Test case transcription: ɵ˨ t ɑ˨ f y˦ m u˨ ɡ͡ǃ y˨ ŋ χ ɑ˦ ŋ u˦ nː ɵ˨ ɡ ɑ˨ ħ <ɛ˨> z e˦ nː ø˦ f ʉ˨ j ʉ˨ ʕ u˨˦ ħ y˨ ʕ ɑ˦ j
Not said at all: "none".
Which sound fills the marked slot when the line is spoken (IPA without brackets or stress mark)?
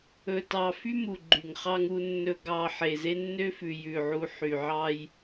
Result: e˨